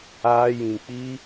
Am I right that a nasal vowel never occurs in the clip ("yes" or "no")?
no